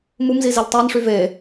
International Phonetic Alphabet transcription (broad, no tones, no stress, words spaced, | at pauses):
mumzi zeʎtˤænʂy ve